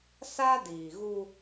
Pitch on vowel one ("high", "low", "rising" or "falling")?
high